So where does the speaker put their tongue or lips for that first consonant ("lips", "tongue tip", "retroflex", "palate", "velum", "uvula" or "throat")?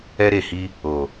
tongue tip